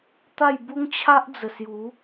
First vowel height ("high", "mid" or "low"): low